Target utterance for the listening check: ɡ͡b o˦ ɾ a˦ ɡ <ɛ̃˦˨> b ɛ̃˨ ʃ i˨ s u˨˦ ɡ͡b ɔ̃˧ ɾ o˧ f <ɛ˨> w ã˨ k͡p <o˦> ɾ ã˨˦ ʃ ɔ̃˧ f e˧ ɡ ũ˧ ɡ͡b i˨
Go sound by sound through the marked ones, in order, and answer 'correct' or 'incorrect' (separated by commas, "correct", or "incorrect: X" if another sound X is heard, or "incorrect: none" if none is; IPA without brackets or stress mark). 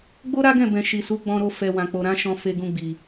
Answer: correct, correct, incorrect: o˨